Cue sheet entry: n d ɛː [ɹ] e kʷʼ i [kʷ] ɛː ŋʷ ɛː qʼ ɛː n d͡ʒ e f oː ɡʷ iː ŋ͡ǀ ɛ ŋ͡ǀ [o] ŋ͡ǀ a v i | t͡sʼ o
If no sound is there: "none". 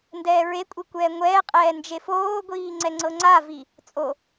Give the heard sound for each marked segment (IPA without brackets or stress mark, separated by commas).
ɹ, kʷ, ɤ